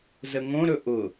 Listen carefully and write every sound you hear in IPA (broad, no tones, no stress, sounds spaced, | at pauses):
z ə ŋ õ ɾ ɵ ʔ ʊ